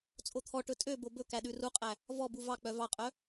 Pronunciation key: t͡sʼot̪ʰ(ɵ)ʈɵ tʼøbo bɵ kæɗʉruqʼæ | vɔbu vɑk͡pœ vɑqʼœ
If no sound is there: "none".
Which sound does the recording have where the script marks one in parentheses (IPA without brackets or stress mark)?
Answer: ɔ